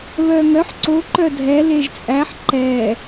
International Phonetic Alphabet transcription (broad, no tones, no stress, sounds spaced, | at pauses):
β œ ŋ œ ħ ǀ o ǃ œ dʱ ɛ l e ʒ t͡sʼ æ ħ ǃ ɛ